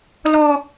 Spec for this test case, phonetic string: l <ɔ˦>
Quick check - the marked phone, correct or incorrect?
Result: correct